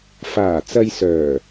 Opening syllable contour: low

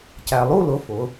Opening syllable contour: low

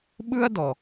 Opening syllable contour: high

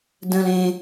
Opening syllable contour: low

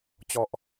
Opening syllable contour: low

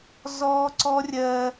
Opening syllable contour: high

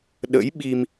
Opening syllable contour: rising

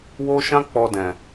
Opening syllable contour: high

